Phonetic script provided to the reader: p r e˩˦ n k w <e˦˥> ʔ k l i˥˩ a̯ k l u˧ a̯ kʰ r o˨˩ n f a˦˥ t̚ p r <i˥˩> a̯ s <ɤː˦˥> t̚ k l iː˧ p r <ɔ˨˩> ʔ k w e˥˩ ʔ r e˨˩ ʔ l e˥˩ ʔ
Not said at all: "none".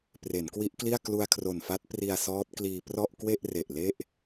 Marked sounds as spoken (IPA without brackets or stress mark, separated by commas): i˦˥, i˧, ɔː˦˥, ɔ˥˩